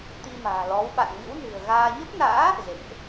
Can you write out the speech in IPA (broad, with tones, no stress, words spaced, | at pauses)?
t̪i˧ma̤ː˨˩lɔ˨˦w ɓa̰˧˨nŋɨ̰˧˥wnɨ̤˨˩ə̯ɣaː˧ ɲə˦˥p̚na̰ː˧˥ | zḛ˧˨ŋʔ